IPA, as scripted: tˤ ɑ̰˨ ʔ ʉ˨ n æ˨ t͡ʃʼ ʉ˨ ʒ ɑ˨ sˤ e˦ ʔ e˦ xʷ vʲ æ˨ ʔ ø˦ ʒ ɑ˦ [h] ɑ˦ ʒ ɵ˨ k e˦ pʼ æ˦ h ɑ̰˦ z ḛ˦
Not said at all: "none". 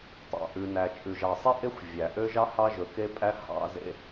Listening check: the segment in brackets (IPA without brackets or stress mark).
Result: h